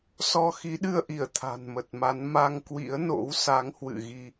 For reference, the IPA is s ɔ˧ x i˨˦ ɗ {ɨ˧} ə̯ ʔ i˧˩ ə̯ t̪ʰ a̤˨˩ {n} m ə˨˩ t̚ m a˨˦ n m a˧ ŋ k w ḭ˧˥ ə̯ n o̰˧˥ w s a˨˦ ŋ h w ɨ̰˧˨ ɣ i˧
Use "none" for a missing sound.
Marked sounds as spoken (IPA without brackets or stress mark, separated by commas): ɨ˧, n